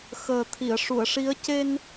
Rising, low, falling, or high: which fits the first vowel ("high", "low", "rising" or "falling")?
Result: low